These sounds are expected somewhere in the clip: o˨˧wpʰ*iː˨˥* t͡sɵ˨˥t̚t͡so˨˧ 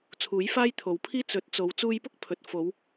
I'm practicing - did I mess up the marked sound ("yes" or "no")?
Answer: yes